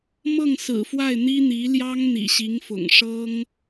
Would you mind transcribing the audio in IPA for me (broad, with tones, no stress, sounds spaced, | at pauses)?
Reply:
m ɤ˥˩ ŋ s ɹ̩˨˩ f w a˥˩ ɪ̯ n̪ i˥ n̪ i˧˥ l j ɑ˥ ŋ n̪ ḭ˨˩ ɕ i˧˥ ŋ f ʊ̰˨˩ ŋ ʂ ɤ˥ ŋ